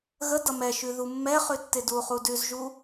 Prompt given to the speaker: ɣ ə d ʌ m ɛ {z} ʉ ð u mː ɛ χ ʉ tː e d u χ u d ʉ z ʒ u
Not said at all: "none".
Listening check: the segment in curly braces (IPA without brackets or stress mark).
ʃ